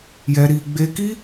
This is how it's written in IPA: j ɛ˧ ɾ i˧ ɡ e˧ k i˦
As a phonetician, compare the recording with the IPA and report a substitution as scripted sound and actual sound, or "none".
ɡ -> ɡ͡b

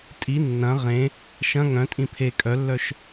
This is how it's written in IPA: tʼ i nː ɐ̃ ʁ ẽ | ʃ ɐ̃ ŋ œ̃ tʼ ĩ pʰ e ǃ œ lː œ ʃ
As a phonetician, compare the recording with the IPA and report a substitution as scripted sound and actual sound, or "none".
ǃ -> kʼ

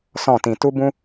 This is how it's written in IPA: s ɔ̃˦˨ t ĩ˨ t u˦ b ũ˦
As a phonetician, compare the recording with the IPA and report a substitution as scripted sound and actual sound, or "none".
none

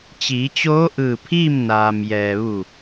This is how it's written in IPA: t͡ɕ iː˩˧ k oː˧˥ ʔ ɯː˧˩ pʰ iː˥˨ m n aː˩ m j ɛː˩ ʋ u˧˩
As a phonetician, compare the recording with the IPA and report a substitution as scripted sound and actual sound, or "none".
k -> t͡ɕ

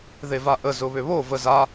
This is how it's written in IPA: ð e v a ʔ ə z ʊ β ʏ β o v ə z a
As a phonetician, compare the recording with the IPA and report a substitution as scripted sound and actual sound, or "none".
none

